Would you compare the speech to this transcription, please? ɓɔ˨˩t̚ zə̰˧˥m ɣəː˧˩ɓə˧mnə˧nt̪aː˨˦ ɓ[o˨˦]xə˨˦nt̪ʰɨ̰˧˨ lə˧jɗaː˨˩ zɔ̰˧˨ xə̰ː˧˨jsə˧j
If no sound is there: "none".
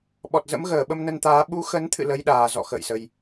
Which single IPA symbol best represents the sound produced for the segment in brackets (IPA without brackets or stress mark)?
u˨˦